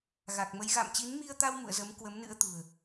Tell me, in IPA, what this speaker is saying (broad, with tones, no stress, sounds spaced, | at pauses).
ɣ a˨˩ k̚ m ə˨˦ j ɣ a̰˧˨ m t͡ɕ i˨˦ n m i˧ ə̯ t̪ a˧ w m ṵ˧˨ ə̯ z ə˨˦ m k w ə˨˦ m n ɨ̰˧˥ ə̯ t̪ ṳ˨˩ ə̯